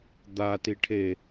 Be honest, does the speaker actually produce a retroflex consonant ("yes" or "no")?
yes